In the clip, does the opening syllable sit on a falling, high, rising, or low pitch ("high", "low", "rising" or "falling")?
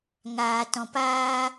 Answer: low